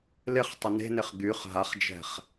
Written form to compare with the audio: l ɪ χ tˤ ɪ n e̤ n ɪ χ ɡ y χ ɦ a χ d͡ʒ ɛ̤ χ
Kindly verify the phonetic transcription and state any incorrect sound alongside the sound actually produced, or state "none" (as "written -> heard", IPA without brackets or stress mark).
none